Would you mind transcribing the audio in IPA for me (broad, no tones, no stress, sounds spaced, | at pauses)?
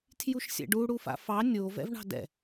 tʰ j u ʃ sʲ ɛ̰ ɖ u ɽ u f a̰ f ɑ nʲ o v ɛ̰ v ɳ ɑ̤ d ɛ̰